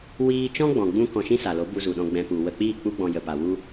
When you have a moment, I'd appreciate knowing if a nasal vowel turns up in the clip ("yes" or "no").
yes